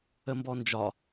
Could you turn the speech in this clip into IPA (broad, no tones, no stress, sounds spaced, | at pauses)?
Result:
ə m b ɔ n d͡ʒ ɒ